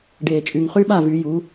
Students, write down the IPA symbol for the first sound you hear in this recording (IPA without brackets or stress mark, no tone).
ɖ